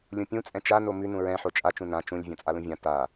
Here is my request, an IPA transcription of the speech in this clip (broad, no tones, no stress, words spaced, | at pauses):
lʲũpʲũ t͡sʼɛ̃t͡ʃano mʉnũ ɹɛ̃ħo t͡ʃʼat͡ʃũ nã t͡ʃũlʲ vʲõt͡sʼalũvʲã ta